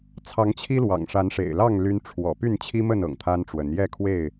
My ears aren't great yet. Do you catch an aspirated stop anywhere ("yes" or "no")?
yes